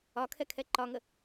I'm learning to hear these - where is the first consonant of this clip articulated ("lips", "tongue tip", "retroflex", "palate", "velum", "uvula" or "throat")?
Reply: velum